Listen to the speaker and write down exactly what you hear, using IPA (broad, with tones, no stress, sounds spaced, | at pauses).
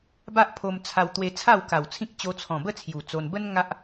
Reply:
b a˦ ʔ pʰ o˧ m t͡sʰ a˧ w t̪ w e˧ t͡sʰ a˥˧ w k a˨˩ w t͡sʰ ĩ˦ k̚ t͡ɕ o˧ t͡sʰ ɔ̃˨˩ b ə˥˧ t͡sʰ j u˨˩ t͡s o˧ n b ə˦ n ŋ a˦ ʔ